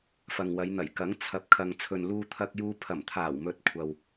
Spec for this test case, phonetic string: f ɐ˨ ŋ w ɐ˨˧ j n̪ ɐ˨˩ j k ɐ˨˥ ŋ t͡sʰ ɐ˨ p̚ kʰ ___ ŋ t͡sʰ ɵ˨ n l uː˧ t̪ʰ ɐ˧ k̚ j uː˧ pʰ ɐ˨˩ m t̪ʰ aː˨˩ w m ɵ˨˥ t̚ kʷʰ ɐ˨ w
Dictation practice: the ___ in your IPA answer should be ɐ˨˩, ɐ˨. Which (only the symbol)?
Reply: ɐ˨